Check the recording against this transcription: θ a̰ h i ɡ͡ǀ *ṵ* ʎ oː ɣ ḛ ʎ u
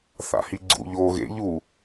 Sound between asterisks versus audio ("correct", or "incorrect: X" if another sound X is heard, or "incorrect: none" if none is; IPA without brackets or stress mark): correct